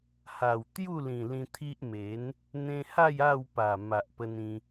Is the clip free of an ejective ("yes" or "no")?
yes